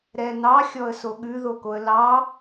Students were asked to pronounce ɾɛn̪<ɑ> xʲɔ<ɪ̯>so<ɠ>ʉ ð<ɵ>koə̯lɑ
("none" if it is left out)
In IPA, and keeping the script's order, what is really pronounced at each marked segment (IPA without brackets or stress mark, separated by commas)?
ɑ, ə̯, ɠ, o